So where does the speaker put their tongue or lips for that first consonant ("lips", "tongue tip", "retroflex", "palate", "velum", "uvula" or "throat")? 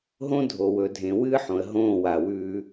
throat